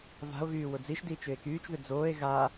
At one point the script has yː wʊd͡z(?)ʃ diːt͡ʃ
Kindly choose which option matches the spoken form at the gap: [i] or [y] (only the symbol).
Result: i